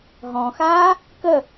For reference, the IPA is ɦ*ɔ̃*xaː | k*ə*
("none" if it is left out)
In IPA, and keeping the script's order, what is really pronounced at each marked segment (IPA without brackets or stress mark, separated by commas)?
ɔ̃, ə